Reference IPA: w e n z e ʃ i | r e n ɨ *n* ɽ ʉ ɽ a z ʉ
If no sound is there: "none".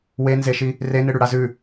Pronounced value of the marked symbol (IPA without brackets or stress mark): none